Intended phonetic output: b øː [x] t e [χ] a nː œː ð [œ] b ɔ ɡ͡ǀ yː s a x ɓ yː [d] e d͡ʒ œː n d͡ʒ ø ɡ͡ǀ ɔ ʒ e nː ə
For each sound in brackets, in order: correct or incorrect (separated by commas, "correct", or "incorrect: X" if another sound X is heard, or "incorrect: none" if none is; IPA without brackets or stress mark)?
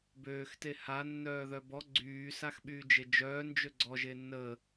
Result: correct, incorrect: h, correct, incorrect: d͡ʒ